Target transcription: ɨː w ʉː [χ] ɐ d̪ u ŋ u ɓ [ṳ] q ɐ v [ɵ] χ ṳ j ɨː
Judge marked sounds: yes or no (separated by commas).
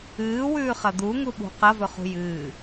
yes, yes, yes